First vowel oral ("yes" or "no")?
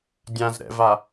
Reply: no